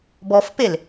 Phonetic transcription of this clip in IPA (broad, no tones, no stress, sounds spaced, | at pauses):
b ɔ f p e l